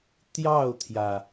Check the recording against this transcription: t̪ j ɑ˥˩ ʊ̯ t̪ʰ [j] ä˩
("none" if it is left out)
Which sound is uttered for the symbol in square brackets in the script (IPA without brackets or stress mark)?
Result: j